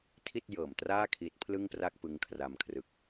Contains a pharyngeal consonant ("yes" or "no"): no